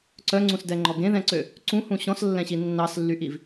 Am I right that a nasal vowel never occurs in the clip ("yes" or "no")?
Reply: no